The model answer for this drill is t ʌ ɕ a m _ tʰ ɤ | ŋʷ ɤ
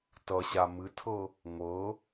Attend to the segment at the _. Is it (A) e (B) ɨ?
B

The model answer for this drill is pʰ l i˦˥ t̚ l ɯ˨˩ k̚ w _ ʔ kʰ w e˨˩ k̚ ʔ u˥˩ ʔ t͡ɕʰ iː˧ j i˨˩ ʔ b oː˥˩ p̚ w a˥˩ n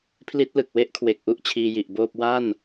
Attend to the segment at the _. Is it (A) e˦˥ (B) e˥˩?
A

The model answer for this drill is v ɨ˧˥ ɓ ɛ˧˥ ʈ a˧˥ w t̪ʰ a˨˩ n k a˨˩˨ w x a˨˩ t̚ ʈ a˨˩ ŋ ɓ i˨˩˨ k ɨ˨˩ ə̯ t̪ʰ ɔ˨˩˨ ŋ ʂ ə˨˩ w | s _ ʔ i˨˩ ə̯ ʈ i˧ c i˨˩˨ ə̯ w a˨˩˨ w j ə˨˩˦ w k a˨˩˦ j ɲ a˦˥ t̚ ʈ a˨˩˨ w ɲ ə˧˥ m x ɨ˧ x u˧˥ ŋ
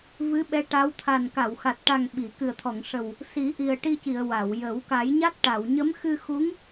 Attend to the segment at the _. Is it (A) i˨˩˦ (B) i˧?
A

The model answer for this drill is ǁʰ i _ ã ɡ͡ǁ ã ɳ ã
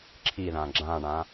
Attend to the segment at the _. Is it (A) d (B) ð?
B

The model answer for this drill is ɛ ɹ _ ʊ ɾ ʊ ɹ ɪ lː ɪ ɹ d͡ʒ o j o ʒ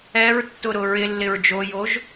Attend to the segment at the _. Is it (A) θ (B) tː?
B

